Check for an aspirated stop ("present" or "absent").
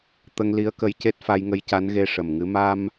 absent